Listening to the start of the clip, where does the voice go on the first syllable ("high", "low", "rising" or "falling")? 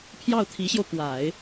falling